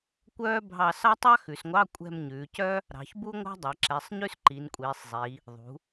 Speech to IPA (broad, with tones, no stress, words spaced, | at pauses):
kʷœː˥ bʱɑ˦˨sɑ˥ tˤɑ˥ xʉ˩˧sŋʷɑ˧˥˧ kʷʼɛ̤˦˨mɲʉː˩˧cœ˥ | ɾɑ̤˩˧çbu˥ŋʷɑ̤˥ dˤɛ˩˧ǁɛ˩˧˩sˤ ɲʉ˥sǃi˩˧nkʷʼiː˩˧sˤzˤi˩˧ | ðˤṳ˩˧